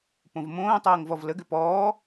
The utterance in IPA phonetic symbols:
p õ v m õː tˤ ɤː ŋ v ɔ v l ə ɡ ʏ p ɔː

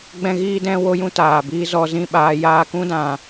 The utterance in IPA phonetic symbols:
ɡ͡b ɛ̃˦ ɣ iː˦ d ɛ̃˦ w o˦ j ũ˦ t aː˨ b iː˦ z ɔ˧ z ĩ˦˨ ɓ aː˧ j aː˧ k ũ˦ d ã˨

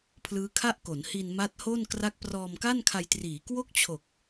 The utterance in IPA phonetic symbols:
pʰ l ɯː˦˥ kʰ a˥˩ ʔ k o˩˦ n h i˧ n m a˦˥ t̚ h o˥˩ n k r a˦˥ k̚ p r ɔː˧ m k a˥˩ n kʰ a˧ j t r iː˩˦ k w o˥˩ k̚ t͡ɕʰ o˨˩ k̚

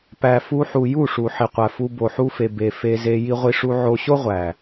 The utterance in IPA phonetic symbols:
p æ˨ f u˧ ħ u˨ j u˦˨ ʂ u˨ ħ i˨ qʷ æ˨ f u˧ b o˨ ħ u˧ f e˨ b e˨ f e˧ z e˧ j i˧ ʁʷ i˧ ʂ u˧ ʕ o˧ ɕ o˦ ʁʷ æ˨

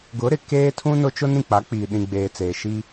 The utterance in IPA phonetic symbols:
ɡ ʊ˨˦ ɾ ɪ˨ k eː˦ tʰ ũ˦ n ʊ˦ t͡ʃ ʊ˦ n ĩ˨ k͡p a˨˦ k͡p iː˨ ɗ ĩ˨ ɡ͡b eː˨ t͡s eː˨ ʃ i˦

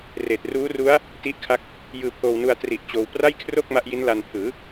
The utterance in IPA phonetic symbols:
r eː˨˩ t̚ r uː˦˥ r u˦˥ a̯ | t i˦˥ ʔ kʰ a˦˥ k̚ | j ɯː˧ pʰ oː˧ w n u˧ a̯ t r i˨˩ ʔ t͡ɕ oː˧ w p r a˥˩ j kʰ r o˥˩ k̚ m a˦˥ ʔ j i˦˥ n l a˧ n pʰ ɯː˩˦

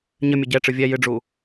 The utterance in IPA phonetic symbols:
ɲ ɘ mʲ ɘ ɟ ɛ ʈ͡ʂ ɨ vʲ ɛ j ɨ ɖ͡ʐ u

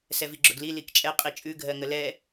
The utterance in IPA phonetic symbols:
s ɛ v i ɡ͡ǁ ʊ ɡ l i l i k t͡ʃʼ ɛ qʼ i t͡ʃʼ ʉ ɡʱ ɜ ŋ ə l ɛ

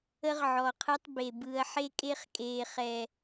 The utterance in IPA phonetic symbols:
ə˦ ʁ ʕ ɔ˨ qʰ ɯ˦ tˤ b e˨ b ɯː˨ ɐ̯ ħ e˦ kʼ e˦ χ kʼ eː˨ χ ɛ˨

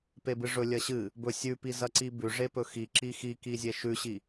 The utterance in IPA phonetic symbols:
p e b ɨ ʐ ɵ lʲ ɐ ɕ ɨ | b ɵ sʲ ʉ p i z ɐ ǀ i b ʉ ʐ e p ɵ x i ǁ i x i k i zʲ e ʃ ʉ ɕ i

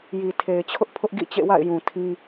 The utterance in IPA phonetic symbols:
j i˨ tʰ e˨ ɪ̯ t͡ɕʰ ʊ˦ ʔ pʰ ʊ˦ ʔ ɡ ḭ˦˨ t͡ɕ ḛ˦˨ w a̰˦˨ ɪ̯ j ũ˨ tʰ ĩ˦

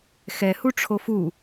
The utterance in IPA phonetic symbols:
x ɛ h u ʈ͡ʂʰ o f u

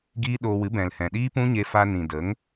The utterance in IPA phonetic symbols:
ɡ iː˦ ɗ oː˧ w ɨ˨˦ b ɛ̃˨ l h ɛ̃˨ ɗ iː˦ p ũ˦ ɲ e˧ f a˧ n ĩ˨ d ə˨˦ ŋ

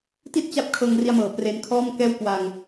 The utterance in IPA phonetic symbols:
t i˥˩ t̚ t͡ɕ a˦˥ p̚ kʰ ɤː˧ ŋ r i˧ a̯ m ɤː˨˩ p r e˦˥ n kʰ ɔː˥˩ m k ɛː˥˩ w k w a˧ ŋ

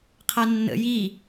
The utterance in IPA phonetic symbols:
qʰ a nː ə̰ j i

